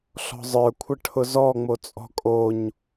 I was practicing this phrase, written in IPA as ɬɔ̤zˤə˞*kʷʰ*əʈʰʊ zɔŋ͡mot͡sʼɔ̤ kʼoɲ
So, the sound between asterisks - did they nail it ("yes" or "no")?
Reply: yes